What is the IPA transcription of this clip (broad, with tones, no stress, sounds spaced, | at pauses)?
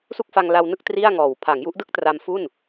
s u˥˩ k̚ f a˧ ŋ l a˧ w n ɯ˥˩ k̚ t r i˥˩ a̯ ŋ ɔː˨˩ w pʰ a˩˦ ŋ j u˦˥ ʔ d ɯ˥˩ k̚ t r a˧ m f u˥˩ n